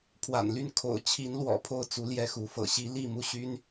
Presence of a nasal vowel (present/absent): absent